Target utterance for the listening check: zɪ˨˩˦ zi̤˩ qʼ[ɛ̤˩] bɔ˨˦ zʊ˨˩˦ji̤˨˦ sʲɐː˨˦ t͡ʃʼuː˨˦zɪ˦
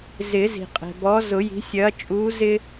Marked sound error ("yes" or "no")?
no